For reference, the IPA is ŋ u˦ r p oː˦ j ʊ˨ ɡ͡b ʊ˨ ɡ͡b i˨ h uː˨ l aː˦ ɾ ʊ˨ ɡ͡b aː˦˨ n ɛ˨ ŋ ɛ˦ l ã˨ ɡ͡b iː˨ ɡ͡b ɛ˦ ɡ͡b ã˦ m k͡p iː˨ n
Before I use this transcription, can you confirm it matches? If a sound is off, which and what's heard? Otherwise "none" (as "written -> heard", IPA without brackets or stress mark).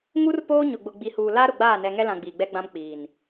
j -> ɲ